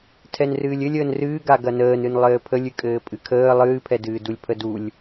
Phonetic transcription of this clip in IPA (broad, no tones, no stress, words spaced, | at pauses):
tʰɛnrɨːlʲɘlʲ əːnrɨːɡa ɡɐnəːnɨn lˠɘːpʰəlʲɨkʼɘː pʼɨkʰəː lˠɨːpʰɛdɨːdulʲ pʰədulʲ